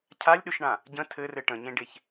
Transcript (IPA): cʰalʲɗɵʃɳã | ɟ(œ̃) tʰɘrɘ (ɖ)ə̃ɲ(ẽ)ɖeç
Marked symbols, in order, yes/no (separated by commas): no, no, yes